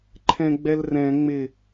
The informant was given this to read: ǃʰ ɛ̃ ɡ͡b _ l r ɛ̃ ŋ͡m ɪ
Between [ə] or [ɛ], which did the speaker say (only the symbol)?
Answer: ɛ